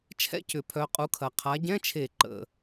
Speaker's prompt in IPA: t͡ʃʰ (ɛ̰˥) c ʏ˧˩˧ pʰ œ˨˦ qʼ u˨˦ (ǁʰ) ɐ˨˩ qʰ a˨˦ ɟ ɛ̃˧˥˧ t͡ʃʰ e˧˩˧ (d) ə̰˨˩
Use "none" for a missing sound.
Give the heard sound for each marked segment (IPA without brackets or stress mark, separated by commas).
ɛ̰˥, kʰ, ǃ